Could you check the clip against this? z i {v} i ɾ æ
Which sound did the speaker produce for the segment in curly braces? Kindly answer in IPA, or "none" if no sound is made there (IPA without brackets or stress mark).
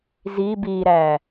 b